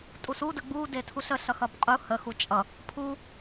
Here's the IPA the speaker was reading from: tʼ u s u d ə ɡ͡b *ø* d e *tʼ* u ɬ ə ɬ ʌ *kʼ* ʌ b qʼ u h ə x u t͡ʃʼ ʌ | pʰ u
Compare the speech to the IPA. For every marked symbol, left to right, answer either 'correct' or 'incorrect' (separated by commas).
incorrect, incorrect, incorrect